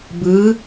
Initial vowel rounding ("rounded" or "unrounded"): unrounded